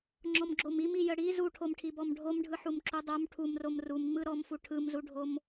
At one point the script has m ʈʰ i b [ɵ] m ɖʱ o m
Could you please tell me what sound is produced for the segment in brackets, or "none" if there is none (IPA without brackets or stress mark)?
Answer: ɔ